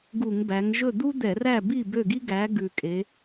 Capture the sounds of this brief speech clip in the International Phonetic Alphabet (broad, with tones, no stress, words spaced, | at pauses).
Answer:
ɡu˧˩˧ŋ bæ˩˧ŋʒɵ˥˨ d̪u˥d̪ɛ˧˩˧ræ˥˨bi˥˨ bø˥˨ɡi˥ɡæ˨˥ ɡʉ˨˩kʼe˩˧